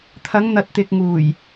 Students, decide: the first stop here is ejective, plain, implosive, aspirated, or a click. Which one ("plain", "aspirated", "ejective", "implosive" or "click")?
aspirated